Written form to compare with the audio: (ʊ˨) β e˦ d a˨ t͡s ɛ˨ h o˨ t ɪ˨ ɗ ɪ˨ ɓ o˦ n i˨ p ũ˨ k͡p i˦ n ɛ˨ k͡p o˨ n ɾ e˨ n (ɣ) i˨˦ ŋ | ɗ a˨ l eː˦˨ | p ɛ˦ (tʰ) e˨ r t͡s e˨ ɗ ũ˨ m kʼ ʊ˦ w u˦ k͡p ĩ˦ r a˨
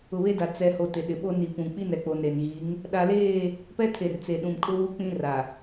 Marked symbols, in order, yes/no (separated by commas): yes, yes, yes